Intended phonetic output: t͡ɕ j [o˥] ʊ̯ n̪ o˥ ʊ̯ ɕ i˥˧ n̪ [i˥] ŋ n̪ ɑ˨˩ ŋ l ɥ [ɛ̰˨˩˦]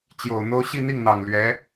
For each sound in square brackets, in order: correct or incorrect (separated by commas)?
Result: incorrect, incorrect, incorrect